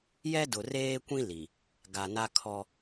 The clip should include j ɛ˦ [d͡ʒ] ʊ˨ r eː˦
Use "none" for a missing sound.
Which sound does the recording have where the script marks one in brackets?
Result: d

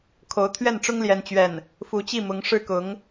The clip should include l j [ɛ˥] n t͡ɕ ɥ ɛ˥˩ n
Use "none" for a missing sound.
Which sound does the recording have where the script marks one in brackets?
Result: ɛ˥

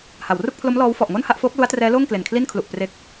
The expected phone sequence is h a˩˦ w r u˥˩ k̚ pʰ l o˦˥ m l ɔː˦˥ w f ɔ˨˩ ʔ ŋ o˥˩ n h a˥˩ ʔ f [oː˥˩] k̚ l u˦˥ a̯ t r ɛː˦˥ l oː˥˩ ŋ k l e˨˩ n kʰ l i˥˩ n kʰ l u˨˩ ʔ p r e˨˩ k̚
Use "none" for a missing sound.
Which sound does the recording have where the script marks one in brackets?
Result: oː˦˥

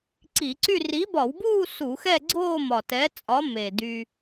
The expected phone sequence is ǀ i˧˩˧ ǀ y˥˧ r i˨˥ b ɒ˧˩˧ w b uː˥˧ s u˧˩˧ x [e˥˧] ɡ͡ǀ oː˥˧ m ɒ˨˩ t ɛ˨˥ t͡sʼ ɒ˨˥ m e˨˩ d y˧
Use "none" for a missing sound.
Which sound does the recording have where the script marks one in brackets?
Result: ɛ˥˧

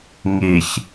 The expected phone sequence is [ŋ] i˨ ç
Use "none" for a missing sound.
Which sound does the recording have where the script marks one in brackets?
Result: ŋ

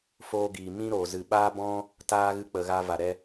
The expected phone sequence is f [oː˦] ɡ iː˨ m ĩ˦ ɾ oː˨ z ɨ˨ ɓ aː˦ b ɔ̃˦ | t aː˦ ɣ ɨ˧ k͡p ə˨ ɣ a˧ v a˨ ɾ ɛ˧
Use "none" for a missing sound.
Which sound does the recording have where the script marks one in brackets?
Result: oː˧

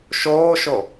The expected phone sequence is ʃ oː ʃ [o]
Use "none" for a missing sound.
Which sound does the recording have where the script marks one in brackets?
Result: o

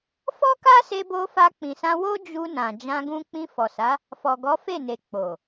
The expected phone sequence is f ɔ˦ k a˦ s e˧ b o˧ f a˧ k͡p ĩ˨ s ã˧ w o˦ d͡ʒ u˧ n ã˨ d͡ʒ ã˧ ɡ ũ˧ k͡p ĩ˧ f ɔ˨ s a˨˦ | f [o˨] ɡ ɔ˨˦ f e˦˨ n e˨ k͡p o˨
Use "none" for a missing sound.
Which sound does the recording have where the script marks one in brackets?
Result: ɔ˨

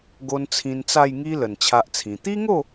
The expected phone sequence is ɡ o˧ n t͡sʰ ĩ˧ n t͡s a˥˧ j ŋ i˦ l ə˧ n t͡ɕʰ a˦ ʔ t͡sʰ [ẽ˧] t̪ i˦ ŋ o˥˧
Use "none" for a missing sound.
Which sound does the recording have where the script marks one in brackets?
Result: ĩ˧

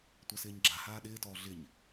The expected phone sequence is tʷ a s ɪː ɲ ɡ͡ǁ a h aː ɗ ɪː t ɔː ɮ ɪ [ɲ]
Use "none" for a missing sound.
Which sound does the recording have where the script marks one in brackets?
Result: ɲ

